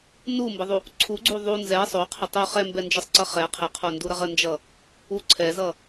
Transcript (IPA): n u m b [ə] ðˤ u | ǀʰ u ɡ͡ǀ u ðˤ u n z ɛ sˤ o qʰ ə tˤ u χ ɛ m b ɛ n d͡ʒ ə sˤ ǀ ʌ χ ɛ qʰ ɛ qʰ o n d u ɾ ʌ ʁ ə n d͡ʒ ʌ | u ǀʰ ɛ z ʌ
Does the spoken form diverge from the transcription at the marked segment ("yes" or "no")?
no